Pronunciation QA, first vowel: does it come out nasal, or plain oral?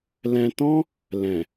nasal